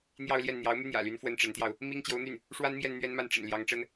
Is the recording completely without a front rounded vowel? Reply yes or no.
no